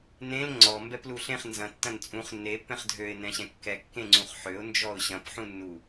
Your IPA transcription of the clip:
n ẽ l ŋ͡ǀ ɔ m b ɛ p l u ɬ ẽ χ n z ɐ̃ tː ɐ̃ n t͡sʼ ũ χ nː e pː ɛ̃ χ dʱ ø ɪ̯ n ɛ̃ ɕ ɛ̃ kː ɛ kː ẽ ŋ͡ǀ ũ χ ħ ø ʊ̯ n d͡ʒ ɔ ʊ̯ ɕ ɐ̃ p ħ ũ nː u

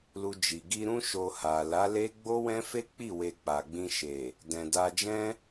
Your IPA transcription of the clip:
l u˧ d͡ʒ i˨ ɡ i˧ ɾ ũ˦ ʃ o˧ h a˨ l a˨˦ l e˦ ɡ͡b o˦ w ɛ̃˦ f e˦ k͡p i˦˨ w e˧ k͡p a˨ ɡ͡b ĩ˧ ʃ e˨ | d ɛ̃˨ d a˧ d͡ʒ ɛ̃˦

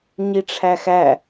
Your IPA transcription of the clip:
ɲ i ʈ͡ʂʰ æ x æ

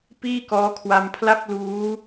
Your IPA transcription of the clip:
p iː˥˩ k ɔː˦˥ kʰ w a˧ m pʰ l a˥˩ p̚ l uː˦˥

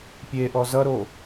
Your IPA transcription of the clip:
pʲ e ʔ ɔ z ʌ ɾ o

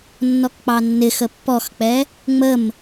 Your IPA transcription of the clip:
nː ɔ k k͡p ɑ nː ɪ x ə pː ɔ x k͡p ɛ | ŋ͡m ə m

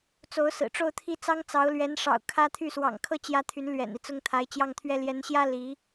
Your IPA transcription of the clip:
t͡s o˧˥ ʊ̯ s ɹ̩˨˩ ʈ͡ʂ o˥˧ ʊ̯ t̪ʰ i˥˩ t͡s ɑ˥ ŋ t͡s ɑ˧˥ ʊ̯ l ɥ ɛ˧˥ n ʂ ɑ̰˨˩ ʊ̯ kʰ ä˥ t̪ʰ y˥˩ s w ɑ̰˨˩ ŋ kʰ ɤ˥˩ t͡ɕ j ä˥ t̪ʰ y˧˥ n l ɥ ɛ̰˨˩ n i˦ t͡s ʊ˥˩ ŋ t̪ʰ a˧˥ ɪ̯ t͡ɕ j ɑ˥˩ ŋ t̪ʰ ɥ ɛ˥ l j ɛ˧˥ n ɕ j ä˥ l i˧˥

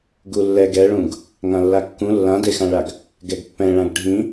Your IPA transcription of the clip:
ɡ u lː ɛ ɡ ɛ ɭ ũ ɡ | ŋ ã lː a kː ũ lː ã d e x ã ɭ a ɡ | ɡ ɛ ɡ pː ɛ̃ ɭ ã ɡ ɖʱ ĩ

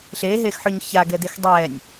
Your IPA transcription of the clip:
ɬ eː ɦ eː x ħ ʏː ɲ ç a ɡ ɛ d e x dˤ ɛː nʲ

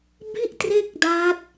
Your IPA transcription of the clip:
b i˥˩ ʔ t r e˥˩ k̚ d a˦˥ t̚

